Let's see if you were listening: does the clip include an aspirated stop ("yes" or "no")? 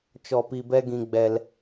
no